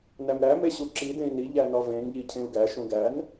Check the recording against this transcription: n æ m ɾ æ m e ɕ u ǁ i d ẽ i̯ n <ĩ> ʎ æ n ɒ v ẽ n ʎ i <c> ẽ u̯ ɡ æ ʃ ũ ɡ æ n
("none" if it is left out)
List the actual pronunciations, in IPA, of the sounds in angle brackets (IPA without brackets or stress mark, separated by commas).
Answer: i, cʰ